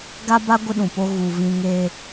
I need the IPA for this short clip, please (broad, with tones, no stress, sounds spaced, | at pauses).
ɡ a˦ b a˦ ɡʷ ɪ˦ ɗ ũ˨ p o˦ ɣ u˨ v ĩ˦ ŋ eː˦